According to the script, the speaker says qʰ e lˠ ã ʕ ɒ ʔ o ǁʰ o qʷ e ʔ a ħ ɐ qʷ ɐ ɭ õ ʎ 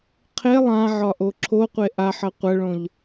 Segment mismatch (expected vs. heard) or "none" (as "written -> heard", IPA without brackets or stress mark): none